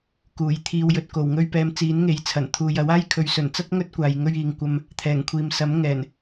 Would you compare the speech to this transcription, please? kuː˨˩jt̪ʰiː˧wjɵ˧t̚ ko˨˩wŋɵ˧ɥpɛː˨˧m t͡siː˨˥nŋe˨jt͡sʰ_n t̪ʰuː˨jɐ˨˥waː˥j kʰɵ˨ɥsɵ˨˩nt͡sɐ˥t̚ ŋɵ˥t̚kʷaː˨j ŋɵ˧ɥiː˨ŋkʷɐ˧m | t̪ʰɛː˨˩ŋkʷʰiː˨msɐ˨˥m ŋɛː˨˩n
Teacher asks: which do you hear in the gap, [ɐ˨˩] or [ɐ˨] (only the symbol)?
ɐ˨˩